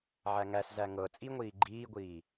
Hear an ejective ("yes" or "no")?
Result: yes